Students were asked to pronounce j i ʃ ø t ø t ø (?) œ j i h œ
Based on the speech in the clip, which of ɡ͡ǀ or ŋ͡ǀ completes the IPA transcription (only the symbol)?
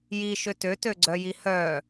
ɡ͡ǀ